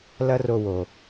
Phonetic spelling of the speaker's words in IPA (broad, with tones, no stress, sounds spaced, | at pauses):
l ɐ˥ r o˧ w o˩